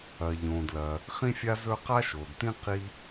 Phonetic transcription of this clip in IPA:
ɐː˩ʎõː˩dlɐː˩ | χĩ˥fʲa˥zɵ˥ qa˥ʃo˩dtĩ˥ qi˥

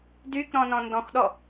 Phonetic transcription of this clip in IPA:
dykɾɔ̃ nɔ̃ndɔ̃xɗɔ

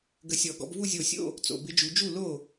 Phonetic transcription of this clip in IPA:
ɡə˧˩sʲɔ˨˩˦ɡɔ̰˨˦b vu˥˧zʲo˧˩sʲo̰˥˧ | t͡so̰˧˩ bɪ˦˥d͡ʒu˨˦ d͡ʒu˥˩lo˥˩

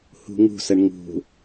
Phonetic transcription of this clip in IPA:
hṳŋṳsəɳ ŋṳ

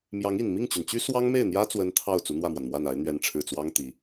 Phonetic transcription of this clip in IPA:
mjɑ˧˥ŋi˨˩n mi˥˩ŋt͡ɕy˩nt͡ɕy˥ swɑ˥ŋme˥˩ɪ̯n̪jä˥t͡swə˧˥n t̪ʰɑ˥˩ʊ̯ t͡su˧˥n̪wä˥˩mwa˩n mwa˥˩na˧˥ɪ̯ n̪ɥɛ˧˥nʈ͡ʂʰɻ̩˨˩t͡swɑ˥ŋ t̪i˧˥

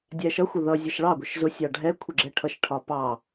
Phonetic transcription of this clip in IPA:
dʲæʃʌxʷə ðʌ zʲʌʃɭɑɡʷəʃ zʊsʲɑ ɖʱɛ kʷʰɪɡ͡ǁɛʈʰʌʃʈʰɒ pɑ

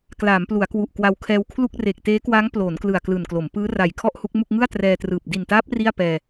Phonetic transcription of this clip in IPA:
klaː˩˦mplu˩˦a̯kwu˨˩ʔ kwa˧wkʰɛː˦˥wkʰlu˥˩k̚ reː˨˩k̚teː˦˥kwa˦˥ŋ ploː˩˦nklɯ˨˩a̯ klɯː˨˩nklo˩˦m pɯː˦˥ ra˨˩j kʰɔ˥˩ʔhu˦˥k̚mu˥˩k̚ ŋɯ˥˩a̯trɛː˧trɯː˨˩p̚ di˨˩ntaː˦˥p̚ ri˥˩a̯pɛː˧

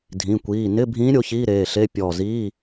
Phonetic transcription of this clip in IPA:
dʱĩ˩˧˩kʷiː˩˧˩ nɪ˧˥˧bʱĩː˧˥ ɾʲo˧˥çiː˧˥˧ɾeː˩˧˩ɬe˧˥˧ pʲɔ˧˩ ziː˧˥˧

